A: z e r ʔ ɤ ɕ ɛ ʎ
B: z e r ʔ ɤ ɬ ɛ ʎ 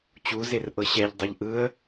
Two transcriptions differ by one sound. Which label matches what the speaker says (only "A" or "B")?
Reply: A